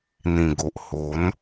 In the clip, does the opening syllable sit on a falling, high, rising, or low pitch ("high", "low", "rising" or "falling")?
low